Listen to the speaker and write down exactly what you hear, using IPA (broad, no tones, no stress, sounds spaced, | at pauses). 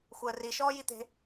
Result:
xʷ əː r i ʃ ɔː j i t̪ e̤